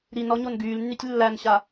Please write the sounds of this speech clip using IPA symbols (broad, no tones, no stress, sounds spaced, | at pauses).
ɾ i n ɔ ɲ o n ɡ yː l nː y tʲ lː æ n ɕ a